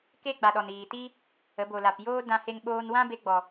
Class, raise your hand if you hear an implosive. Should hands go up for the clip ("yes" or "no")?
yes